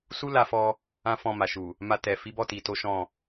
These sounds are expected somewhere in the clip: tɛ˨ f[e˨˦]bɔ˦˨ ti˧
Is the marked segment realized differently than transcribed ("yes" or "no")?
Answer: yes